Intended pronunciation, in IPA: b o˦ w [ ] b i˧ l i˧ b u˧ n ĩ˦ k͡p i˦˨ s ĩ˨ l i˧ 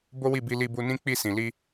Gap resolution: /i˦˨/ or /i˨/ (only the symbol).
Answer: i˦˨